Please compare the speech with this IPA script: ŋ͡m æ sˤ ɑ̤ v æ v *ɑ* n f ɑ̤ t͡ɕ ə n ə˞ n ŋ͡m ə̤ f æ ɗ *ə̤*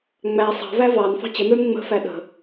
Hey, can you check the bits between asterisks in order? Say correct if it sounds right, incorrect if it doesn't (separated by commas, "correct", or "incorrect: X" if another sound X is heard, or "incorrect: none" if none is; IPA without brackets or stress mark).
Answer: correct, correct